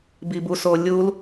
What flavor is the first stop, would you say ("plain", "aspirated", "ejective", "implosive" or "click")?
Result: plain